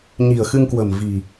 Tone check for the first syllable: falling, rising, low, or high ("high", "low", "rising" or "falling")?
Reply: low